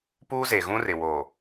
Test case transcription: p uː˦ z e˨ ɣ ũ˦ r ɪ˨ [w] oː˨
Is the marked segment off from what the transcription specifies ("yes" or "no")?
no